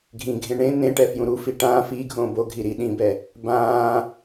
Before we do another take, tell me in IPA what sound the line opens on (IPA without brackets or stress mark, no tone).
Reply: ɡʱ